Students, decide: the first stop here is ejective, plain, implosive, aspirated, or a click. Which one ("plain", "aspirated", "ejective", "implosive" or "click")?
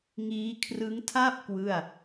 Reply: aspirated